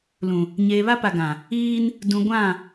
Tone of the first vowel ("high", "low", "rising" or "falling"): low